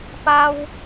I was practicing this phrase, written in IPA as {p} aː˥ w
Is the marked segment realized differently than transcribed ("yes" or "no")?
no